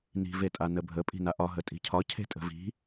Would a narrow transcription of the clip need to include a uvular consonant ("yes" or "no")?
no